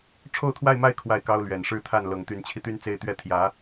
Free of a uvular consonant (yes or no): yes